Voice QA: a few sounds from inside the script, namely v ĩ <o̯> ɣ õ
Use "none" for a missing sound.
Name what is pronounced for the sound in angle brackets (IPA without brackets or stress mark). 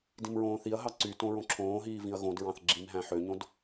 ɐ̯